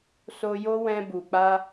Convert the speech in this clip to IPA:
s o˧ j o˦ w ɛ̃˧ b u˨ k͡p a˧

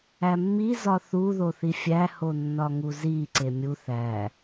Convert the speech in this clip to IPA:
æ mː i z ɒ θ u ð o θ i fʲ æ h o nː ɒ ŋ u z i ǀ e mʲ u θ æ

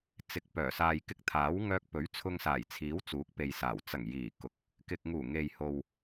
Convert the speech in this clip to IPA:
t͡s ɪ˨ k̚ p œː˨˩ s aː˨ j k ɪ˧ k̚ t̪ʰ aː˨˥ w ŋ œː˧ k̚ p ɵ˨˥ ɥ t͡sʰ ʊ˧ ŋ s aː˨˩ j t͡sʰ iː˨˥ w t͡s uː˨˥ k̚ p e˨ j s aː˨˩ w t͡s ɐ˨˩ ŋ j iː˨˩ k ʊ˨˥ k̚ | k ɪ˨ k̚ ŋ uː˨˩ ŋ e˨ j h o˨ w

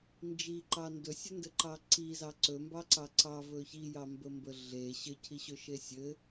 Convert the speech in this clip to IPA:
n d͡ʒ i ǃ ɑ n d ɵ sʲ ɵ n d ɘ ǃ ɑ ǀ i z ɑ ǀ ɵ m b ɑ ǀ ɑ ǀ ɑ v ɵ ç i j ɑ m b ə m b ə ɮ e ɕ ɘ cʰ i ɕ ɵ ʃ e sʲ ɘ

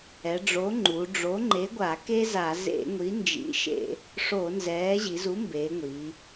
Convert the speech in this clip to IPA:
ɛ˩˧ ɖ͡ʐ o˨˥ ŋ͡ǃ u˩˧ ɖ͡ʐ o˨˥ ŋ͡ǃ e˨˥ ɡʷ a˧˩˧ k e˥ z a˧˩˧ z ḛ˧˩˧ ŋʷ i˨˥ n d͡ʒ ḭ˨˥ ʃ ḛ˧˩˧ | ʂ o˧˩˧ n z ɛː˨˥ ʑ i˩˧ z u˨˥ m b eː˩˧ ŋʷ i˩˧

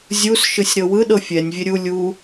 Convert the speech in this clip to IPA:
zʲ u s ʃ ɯ sʲ ɾ ɤ w ɯ ɗ ɤ fʲ ɛ nʲ vʲ e ɾʲ u lʲ u

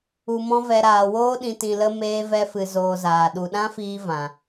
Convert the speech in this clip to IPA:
u˧ m ɔ̃˦ v ɛ˧ ɾ aː˨ w oː˦ ɗ ĩ˧ t ĩ˧ l ə˦ m eː˦ v ɛ˦ f ɨ˧ z oː˧ z aː˨ ɗ u˨ ɗ ã˦ f iː˧ v ã˨

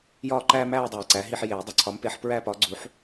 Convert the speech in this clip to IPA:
j ɒː˦˨ ǃ æː˦ m æː˦˨ dˤ æː˨ ǀ æ˩˥ ɦ i˦˨ ħ j eː˨˩˦ dˤ u˩˥ ǀʰ ɒː˩˥ m p eː˩˥ ħ p ɹ æː˦ p ɒː˩˥ ɡ͡ǀ u˩˥ ħ

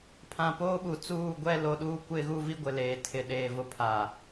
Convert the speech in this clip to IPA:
pʰ ã˨ p oː˦ ɓ u˨ t͡s uː˦˨ ɡʷ ɛ˦ l o˨˦ ɗ uː˦ kʷ ɪ˦ ɣ u˦ v i˦ ɡʷ ɪ˨ l eː˨ tʰ ɪ˨ ɗ eː˨ v ʊ˦ pʰ a˨

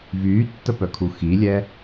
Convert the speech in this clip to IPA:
v yː tː ə p œ kʰ u x i lʲ ɛ

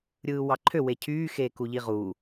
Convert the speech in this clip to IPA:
ɾʲ ɯː w ɑ ǃʰ ø w e cʰ yː x eː k u ʎ i ʁ uː

